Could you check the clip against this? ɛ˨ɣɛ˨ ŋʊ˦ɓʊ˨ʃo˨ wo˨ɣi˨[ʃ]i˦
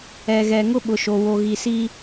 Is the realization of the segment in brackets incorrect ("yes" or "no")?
yes